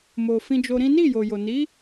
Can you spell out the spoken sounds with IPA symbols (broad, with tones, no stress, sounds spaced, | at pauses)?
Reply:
m o˨ f ĩ˧ d͡ʒ o˧ ɾ ĩ˦ n i˦˨ j o˨ j o˨ n i˨˦